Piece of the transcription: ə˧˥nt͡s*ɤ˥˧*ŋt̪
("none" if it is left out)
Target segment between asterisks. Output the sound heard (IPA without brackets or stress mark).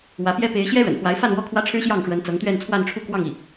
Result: ɤ˧˥